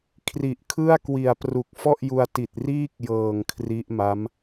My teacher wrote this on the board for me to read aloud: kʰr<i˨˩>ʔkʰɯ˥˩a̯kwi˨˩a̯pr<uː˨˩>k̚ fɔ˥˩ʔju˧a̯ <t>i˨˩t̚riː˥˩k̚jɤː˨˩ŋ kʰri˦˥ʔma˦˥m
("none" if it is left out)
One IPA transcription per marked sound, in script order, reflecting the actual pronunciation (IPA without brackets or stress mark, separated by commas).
i˨˩, u˨˩, t